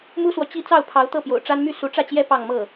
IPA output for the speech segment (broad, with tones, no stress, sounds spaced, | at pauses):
m u˥ s w ɔ˨ t͡ɕ i˥˧ t͡s ɑ˥˩ ʊ̯ pʰ ɑ˧˥ ʊ̯ t̪ ɤ˥˩ p j o̰˨˩ ʊ̯ ʈ͡ʂ a˥ n m y˥˩ s u˧˥ ʈ͡ʂ ä˥˩ t͡ɕ j ɛ˥ p ɑ˥˧ ŋ m ɤ˥˩